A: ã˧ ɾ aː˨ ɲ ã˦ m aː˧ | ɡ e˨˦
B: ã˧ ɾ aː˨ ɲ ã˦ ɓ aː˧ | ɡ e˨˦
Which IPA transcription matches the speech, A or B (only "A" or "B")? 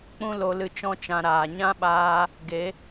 B